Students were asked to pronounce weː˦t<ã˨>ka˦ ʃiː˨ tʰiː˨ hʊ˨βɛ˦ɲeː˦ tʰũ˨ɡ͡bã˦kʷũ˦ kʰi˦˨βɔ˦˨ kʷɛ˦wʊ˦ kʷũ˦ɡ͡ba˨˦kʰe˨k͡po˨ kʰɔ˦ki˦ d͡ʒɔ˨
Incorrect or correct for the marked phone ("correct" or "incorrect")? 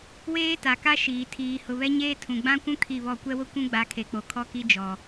incorrect